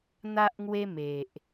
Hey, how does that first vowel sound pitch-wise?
high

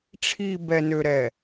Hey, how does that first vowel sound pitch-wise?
low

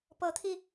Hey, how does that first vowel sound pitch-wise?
rising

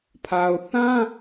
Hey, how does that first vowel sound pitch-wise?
low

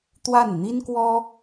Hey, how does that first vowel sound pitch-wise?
falling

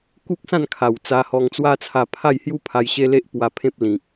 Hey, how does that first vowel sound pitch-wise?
high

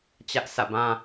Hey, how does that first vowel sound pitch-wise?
high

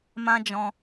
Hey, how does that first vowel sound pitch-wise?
high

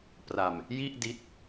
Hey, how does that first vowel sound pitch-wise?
low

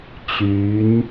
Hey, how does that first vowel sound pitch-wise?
rising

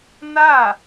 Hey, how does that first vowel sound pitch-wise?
falling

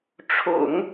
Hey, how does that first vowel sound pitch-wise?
low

